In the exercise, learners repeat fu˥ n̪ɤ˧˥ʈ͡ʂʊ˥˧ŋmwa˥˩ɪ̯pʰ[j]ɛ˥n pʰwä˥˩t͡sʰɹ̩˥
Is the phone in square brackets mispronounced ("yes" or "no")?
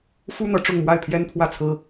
no